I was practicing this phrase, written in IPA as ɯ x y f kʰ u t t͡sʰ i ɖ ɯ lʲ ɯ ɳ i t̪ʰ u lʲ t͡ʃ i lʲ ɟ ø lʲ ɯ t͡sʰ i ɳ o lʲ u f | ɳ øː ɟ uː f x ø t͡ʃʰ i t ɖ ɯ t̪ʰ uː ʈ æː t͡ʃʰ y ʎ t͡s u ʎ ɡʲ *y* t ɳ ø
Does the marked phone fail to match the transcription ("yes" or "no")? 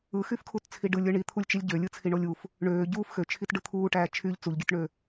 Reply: yes